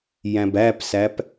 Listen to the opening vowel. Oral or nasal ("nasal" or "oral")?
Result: nasal